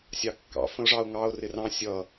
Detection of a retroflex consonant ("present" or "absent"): present